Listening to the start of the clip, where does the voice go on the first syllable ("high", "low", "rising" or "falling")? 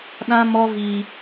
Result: high